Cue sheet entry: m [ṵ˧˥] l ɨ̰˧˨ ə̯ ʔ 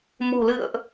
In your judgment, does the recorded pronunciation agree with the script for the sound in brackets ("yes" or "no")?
no